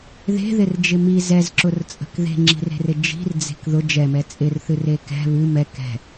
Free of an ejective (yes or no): no